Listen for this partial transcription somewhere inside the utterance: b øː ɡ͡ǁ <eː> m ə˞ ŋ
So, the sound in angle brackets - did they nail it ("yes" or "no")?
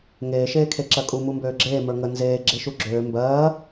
yes